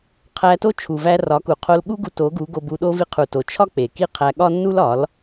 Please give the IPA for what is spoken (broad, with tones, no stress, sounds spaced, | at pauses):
qʰ æ˧ t o˦ t͡ʃʰ u˨ v æ˧ r ɒ˨˦ k u˨ qʰ o˧ l ɠ u˦ ɡ u˧ t o˨˦ ɡ u˨˦ ɡ o˧ b u˧ ɗ o˦ v i˧ qʰ u˨ t o˨ t͡ʃʰ ɒ˦ k͡p e˨ k i˦ qʰ æ˧ ɠ ɒ˦ nː u˦ l ɒ˨˦ l